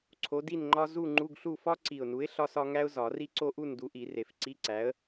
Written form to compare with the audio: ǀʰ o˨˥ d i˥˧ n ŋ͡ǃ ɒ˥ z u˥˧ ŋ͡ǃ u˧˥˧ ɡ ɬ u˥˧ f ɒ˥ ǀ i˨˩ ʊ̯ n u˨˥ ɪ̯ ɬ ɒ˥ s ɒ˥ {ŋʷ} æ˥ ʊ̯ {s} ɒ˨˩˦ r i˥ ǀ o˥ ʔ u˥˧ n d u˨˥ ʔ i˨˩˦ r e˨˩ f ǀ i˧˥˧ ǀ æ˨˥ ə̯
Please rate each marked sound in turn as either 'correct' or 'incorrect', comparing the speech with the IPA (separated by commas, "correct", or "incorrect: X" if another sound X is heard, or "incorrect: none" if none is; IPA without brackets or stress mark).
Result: incorrect: ŋ, incorrect: z